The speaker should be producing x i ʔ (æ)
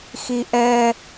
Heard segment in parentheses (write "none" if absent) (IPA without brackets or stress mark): ɛ